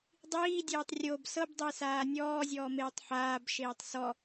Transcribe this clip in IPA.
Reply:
dˤiːdʲeːtˤ rʲob sɤbdˤisaː nʲɔːzʲɔːmeːtˤ ħaːbʃeːtˤ sɔ

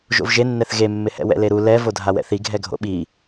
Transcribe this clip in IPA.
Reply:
ʒo̰vʒenːɛθ ɣemːɪhɛ̰ wɛ̰leɾu lɛ vodʱawɛ̰θi ɡʱɛɡʱo̰ɓi

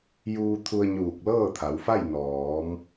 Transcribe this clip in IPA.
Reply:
juː˧t̪ʰu˧ə̯ ɲuː˧˩k̚lɤː˥˨t̪ʰa˩˧wfa˥˨j nɔː˩˧m

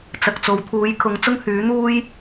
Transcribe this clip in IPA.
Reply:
t͡sɐ˨k̚t͡so˨˧w t̪ʰuː˨˥jkʰʊ˨˥ŋ t͡sʊ˥ŋhyː˨˥ n̪uː˥j

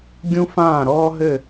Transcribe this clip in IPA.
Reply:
ɡʲũ˥fãː˥˨ɾɔː˥ɦɘ˥˨

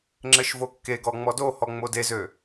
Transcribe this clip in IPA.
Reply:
ŋ͡ǁɘʃvokːeɡɔ ŋ͡mɔdohɔ ŋ͡modezø

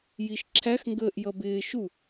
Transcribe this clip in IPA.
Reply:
jiʃǁʰæx ŋɡəːʔjʌbɪː ʃu

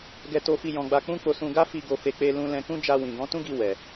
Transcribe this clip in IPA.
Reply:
ɡɛ˧to˧fi˧ jɔ̃˧ɡ͡ba˧k͡pũ˦ k͡po˧sũ˧ɡa˦ fi˧ ɡo˨fe˨ k͡pe˧lũ˧ lɛ̃˧kũ˦ d͡ʒa˧ wĩ˨ɡɔ̃˨˦tũ˦ɡi˧ wɛ˨

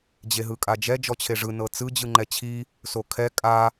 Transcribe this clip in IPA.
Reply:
d͡ʑeɦɯkʼad͡ʒɛ d͡ʒɔt͡ɕʰeʐɯ nɤt͡sɯ d͡ʑɯŋ͡ǃɛt͡ɕʰi | sokʰɛ kʼa

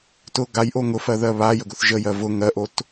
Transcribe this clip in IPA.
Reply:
tʊ ɡajʔo ŋʊfɜðɜ βajəɡʊθ ʒəjɜ vʊ ŋɜʔot

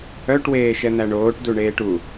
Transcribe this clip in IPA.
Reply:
œʈ weːʃɛn̪æɳoːʈ duɳeːʈu

